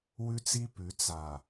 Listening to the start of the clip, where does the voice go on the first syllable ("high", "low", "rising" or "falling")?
high